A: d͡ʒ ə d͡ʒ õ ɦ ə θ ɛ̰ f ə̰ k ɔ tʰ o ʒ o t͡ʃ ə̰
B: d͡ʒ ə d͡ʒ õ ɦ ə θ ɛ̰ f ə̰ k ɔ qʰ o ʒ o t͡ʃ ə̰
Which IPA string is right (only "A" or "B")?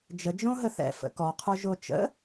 B